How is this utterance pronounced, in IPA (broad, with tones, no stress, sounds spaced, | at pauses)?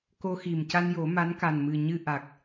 k o˧ x i˨˩ m c a˧ n j o˨˩˦ m a˧˥ n k a˨˩ n m ɨ˨˩ ɲ ɨ˧ ʔ a˨˩ k̚